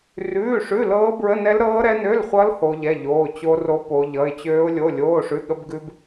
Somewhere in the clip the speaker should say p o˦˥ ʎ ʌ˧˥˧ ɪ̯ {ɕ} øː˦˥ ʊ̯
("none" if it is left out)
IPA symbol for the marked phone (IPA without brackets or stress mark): t͡ɕ